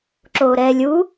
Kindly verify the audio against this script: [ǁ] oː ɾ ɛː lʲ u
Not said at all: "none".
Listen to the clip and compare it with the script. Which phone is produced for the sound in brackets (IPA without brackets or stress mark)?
ǁ